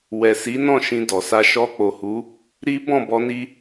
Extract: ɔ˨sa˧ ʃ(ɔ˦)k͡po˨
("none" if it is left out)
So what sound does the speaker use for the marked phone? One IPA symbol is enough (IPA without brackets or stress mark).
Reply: ɔ˧